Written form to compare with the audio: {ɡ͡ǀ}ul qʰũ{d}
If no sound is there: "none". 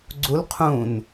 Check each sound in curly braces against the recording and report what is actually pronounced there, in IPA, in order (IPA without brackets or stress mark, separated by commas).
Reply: ɡ͡ǀ, n